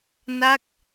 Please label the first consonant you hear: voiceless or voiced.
voiced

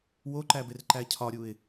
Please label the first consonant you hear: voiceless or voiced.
voiced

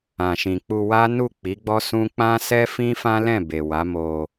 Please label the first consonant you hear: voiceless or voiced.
voiceless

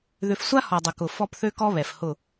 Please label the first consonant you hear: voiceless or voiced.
voiced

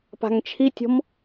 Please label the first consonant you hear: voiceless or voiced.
voiceless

